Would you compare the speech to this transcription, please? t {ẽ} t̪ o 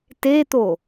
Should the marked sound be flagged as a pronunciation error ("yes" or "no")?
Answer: yes